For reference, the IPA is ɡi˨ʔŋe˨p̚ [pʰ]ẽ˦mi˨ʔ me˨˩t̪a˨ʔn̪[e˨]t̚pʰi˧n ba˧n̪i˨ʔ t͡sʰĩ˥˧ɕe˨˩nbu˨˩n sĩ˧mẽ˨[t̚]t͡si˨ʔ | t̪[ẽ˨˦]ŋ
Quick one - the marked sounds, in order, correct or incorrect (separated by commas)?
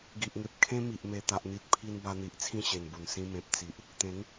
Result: incorrect, incorrect, incorrect, correct